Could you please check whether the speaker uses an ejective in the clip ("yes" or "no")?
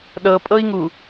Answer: yes